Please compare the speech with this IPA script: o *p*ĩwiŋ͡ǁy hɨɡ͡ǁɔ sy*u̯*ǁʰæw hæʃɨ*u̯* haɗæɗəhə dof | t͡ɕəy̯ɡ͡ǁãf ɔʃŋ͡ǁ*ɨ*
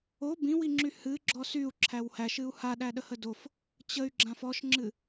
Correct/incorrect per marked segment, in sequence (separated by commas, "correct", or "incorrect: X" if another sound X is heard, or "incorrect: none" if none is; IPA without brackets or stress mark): incorrect: b, correct, correct, correct